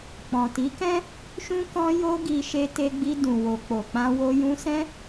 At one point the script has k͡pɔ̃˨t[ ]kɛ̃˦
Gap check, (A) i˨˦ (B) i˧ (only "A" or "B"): A